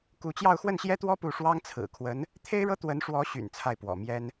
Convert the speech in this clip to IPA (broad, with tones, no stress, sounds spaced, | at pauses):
k u˧˥ t͡ɕ j ɑ˥˧ ʊ̯ x w ə˥˩ n ɕ j ɛ˥ t̪ w ɔ˥ p u˥˩ ʂ w ɑ˥ ŋ t͡sʰ ɹ̩˨˩ kʰ w ə˧˥ n | t̪ʰ e˥ ɪ̯ ɻ ɤ˥ t̪ w ə˧˥ n ʂ w ɔ˧˥ ɕ y̰˨˩ n t͡sʰ a˥˩ ɪ̯ p w ɔ̰˨˩ m j ɛ˥ n